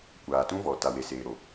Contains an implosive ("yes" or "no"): no